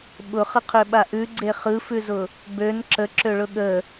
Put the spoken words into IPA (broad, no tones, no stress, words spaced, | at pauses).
ɓʊχəqʰøɓa ʔʉɡ͡ǀe χɯfʉzʊ | bøn ǁəǁøɭʊ ɠə